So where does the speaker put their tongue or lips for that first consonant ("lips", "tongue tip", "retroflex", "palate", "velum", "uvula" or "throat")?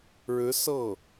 retroflex